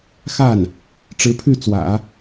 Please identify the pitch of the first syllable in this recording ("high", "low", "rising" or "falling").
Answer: falling